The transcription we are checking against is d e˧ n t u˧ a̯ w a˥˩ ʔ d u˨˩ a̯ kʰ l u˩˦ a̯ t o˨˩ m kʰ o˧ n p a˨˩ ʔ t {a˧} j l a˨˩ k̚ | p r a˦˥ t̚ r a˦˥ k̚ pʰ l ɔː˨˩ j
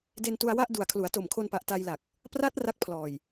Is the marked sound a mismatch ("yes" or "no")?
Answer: no